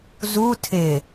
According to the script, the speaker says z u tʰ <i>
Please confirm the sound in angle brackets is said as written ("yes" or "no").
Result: no